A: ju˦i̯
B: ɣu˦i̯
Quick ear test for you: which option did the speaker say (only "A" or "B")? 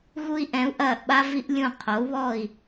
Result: B